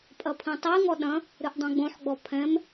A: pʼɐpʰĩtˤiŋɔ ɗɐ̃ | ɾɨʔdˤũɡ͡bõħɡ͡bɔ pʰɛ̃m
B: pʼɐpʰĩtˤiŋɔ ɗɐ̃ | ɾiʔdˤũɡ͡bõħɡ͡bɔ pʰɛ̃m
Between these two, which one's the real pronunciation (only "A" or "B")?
A